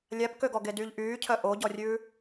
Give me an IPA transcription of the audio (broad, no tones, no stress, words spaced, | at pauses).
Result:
lʲæpkøɡɔ ɡedyʎ ʔyːcʰœ ʔoɟɔrʲʉː